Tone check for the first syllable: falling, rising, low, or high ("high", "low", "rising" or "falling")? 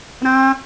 high